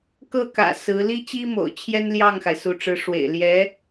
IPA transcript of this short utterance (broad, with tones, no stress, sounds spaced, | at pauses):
k ɤ˥˩ k ä̰˨˩ s ɹ̩˧˥ l i˥ t͡ɕ i˥ m o̰˨˩ ʊ̯ t͡ɕʰ j ɛ˥ n l j ɑ˥˩ ŋ x a˩ ɪ̯ s u˧˥ ʈ͡ʂ ɻ̩˧˥ ʂ w ḛ˨˩ ɪ̯ l j ɛ˧˥